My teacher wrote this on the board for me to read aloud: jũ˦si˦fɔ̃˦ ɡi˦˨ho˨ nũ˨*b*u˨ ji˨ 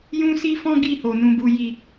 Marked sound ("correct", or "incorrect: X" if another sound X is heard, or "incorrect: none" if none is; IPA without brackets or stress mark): correct